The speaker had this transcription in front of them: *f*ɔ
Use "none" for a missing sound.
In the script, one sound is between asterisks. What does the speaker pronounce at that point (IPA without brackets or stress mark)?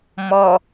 m